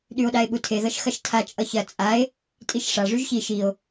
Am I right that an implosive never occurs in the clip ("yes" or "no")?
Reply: no